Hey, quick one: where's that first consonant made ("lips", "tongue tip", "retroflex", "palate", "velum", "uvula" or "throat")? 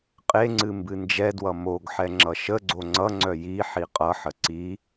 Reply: uvula